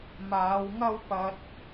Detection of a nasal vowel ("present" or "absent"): absent